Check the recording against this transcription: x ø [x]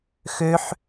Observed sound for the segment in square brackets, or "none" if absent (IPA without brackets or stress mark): ħ